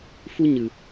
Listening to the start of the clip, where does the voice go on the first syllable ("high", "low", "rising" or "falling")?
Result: high